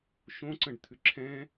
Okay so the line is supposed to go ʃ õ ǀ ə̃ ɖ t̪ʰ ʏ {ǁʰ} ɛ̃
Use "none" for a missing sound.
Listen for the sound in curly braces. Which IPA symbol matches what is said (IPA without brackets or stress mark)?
ǁʰ